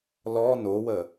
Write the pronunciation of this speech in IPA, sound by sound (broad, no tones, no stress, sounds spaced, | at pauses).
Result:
l ɔ n o w ə